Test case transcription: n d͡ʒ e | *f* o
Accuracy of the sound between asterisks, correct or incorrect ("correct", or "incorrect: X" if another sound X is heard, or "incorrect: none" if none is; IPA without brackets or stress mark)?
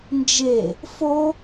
correct